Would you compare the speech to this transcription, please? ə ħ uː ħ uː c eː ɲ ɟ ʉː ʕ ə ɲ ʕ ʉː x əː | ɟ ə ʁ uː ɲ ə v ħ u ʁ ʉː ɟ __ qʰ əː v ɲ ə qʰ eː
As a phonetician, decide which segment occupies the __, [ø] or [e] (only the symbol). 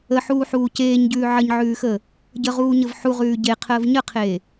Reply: e